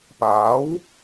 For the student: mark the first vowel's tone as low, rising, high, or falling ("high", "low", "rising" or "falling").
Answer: rising